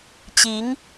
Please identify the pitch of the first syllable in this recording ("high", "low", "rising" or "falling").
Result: rising